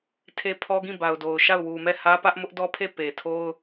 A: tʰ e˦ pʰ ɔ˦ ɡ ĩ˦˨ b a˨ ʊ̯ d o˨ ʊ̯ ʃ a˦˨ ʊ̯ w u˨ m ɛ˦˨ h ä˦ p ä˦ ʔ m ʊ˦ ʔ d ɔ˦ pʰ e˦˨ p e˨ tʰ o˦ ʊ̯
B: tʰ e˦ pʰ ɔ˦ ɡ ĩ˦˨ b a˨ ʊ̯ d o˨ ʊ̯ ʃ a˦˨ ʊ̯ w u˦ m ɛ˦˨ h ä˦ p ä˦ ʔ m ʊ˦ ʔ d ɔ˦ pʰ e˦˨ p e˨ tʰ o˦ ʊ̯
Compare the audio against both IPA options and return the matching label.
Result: A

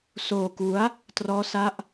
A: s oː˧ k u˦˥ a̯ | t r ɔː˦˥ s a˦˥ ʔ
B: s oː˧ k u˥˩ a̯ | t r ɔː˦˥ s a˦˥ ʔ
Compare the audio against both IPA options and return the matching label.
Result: A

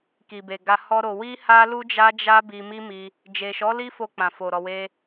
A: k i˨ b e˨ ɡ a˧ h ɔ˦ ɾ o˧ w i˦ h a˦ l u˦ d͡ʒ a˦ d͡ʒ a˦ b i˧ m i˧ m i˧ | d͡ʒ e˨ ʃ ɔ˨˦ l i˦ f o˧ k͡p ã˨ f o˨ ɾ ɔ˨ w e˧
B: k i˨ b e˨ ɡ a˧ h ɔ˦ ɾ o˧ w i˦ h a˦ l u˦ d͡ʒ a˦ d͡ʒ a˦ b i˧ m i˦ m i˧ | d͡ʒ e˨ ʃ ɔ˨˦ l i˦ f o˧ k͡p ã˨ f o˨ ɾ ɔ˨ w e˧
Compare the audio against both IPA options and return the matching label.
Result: B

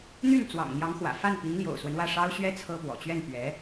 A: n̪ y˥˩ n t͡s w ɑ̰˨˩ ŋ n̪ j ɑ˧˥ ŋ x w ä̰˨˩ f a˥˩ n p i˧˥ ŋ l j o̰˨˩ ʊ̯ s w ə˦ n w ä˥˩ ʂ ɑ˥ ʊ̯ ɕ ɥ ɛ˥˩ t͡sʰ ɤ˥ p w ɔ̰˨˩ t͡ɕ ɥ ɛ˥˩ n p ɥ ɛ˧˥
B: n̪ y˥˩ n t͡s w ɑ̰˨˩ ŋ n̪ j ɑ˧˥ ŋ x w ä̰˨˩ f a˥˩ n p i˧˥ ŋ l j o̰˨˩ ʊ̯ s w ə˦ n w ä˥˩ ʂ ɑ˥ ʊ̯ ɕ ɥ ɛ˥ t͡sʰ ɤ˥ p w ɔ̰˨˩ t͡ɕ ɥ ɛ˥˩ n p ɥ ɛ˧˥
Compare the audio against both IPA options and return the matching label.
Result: B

